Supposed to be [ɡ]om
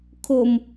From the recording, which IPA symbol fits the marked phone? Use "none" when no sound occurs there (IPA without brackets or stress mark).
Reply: kʰ